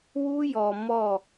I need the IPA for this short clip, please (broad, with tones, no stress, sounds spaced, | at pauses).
w u˦ j ɔ˨ m ɔ˦˨